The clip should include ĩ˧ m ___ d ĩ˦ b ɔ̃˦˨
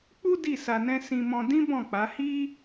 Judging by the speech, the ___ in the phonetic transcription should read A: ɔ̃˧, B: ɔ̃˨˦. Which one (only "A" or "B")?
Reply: A